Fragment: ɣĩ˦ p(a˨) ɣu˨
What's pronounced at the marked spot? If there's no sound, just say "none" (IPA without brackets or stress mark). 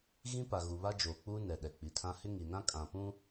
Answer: a˨